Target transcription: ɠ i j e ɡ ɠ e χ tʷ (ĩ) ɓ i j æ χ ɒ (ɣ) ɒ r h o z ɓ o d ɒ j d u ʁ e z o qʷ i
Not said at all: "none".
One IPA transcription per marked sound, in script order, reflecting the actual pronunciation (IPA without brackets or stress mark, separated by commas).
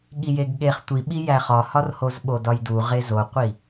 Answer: i, h